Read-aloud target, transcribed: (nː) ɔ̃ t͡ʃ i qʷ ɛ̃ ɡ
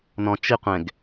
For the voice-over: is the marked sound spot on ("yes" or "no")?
no